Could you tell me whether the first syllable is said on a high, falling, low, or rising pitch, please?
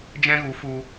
high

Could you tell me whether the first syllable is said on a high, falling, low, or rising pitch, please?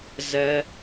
high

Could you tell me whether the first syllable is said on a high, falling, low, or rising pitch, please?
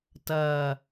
low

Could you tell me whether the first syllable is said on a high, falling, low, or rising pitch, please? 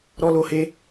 high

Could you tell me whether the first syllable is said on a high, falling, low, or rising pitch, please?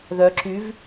rising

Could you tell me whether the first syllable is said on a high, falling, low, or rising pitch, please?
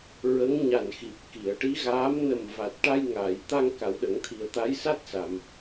rising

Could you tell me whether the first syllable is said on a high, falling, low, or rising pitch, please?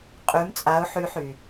rising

